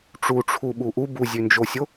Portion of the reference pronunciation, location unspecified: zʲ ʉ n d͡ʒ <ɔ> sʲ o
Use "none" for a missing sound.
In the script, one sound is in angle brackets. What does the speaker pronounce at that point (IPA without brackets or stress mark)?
o